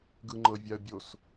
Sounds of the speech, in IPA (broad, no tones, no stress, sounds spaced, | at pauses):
ɡ ɯ ŋ͡ǃ ɤ vʲ a ə̯ bʲ o s